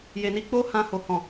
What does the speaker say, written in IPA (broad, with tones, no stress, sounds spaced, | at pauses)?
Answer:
j e˨ n i˧ k͡p o˦ h ã˧ h o˨ h ɔ̃˨